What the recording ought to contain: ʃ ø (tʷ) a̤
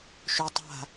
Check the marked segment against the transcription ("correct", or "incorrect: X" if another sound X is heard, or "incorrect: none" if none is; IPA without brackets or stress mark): incorrect: tˤ